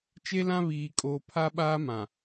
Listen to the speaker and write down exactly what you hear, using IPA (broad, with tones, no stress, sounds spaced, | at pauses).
t͡ʃ e˦ l ã˦ β iː˨ kʼ oː˨ pʰ a˦ ɓ aː˦ m ã˨